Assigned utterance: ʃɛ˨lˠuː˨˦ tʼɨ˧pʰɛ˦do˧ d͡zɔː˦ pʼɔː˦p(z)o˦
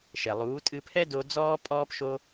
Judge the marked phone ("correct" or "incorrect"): incorrect